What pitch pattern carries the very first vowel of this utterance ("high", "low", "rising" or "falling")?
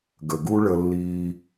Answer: low